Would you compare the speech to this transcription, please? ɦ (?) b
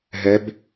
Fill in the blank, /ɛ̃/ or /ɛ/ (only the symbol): ɛ